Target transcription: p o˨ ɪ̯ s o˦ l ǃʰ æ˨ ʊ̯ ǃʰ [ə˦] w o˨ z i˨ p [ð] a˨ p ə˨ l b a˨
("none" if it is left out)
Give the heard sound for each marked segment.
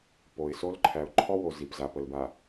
ɔ˦, z

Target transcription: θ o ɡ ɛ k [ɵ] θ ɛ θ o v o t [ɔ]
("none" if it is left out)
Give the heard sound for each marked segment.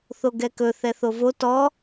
ɵ, ɔ

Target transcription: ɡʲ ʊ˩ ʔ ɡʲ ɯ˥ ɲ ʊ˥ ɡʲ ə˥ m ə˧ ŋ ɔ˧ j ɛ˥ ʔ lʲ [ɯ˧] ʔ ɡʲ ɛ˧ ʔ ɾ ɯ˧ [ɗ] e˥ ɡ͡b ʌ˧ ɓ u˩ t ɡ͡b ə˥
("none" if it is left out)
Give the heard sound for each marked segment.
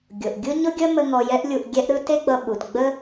u˧, t

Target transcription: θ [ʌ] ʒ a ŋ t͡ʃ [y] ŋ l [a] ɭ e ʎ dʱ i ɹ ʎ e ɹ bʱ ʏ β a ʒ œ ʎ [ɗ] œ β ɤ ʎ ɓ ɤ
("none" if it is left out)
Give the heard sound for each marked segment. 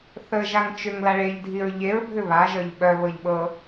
ə, ʏ, a, ɓ

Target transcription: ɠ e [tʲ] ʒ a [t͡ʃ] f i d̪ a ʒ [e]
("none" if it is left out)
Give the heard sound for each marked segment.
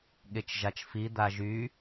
t͡ʃ, t͡ʃ, y

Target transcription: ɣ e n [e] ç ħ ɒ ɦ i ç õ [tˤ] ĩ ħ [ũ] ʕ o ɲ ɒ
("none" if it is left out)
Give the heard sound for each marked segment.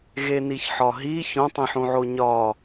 i, tˤ, ũ

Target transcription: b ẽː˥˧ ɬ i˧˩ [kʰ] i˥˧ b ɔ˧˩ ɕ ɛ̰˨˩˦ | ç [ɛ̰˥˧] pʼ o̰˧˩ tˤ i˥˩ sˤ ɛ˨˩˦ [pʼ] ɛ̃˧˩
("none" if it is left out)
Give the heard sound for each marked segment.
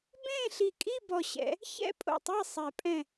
kʼ, ɛ̰˥˧, pʼ

